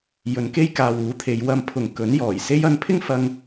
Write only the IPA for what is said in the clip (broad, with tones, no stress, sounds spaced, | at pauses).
j ɵ˨ n k e˥ j k aː˨ w uː˨˥ t̪ʰ e˨˧ j w ɐ˧ m pʰ ʊ˨ ŋ k ɵ˨˥ n j ɔː˨˩ j s e˥ j ɐ˧ n pʰ ɪ˥ ŋ f ɐ˧ ŋ